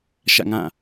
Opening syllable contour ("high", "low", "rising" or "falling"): falling